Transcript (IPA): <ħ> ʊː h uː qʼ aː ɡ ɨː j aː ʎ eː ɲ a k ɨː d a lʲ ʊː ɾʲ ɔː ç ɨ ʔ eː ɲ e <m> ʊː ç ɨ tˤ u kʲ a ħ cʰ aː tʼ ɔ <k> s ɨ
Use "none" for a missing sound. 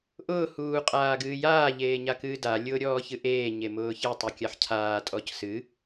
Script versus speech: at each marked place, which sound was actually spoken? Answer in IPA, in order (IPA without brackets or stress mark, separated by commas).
ʔ, m, c